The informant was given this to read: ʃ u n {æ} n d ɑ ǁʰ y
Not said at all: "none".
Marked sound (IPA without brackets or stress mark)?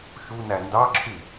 æ